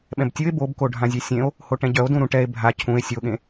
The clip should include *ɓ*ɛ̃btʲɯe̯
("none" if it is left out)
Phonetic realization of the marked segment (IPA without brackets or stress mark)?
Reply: ɓ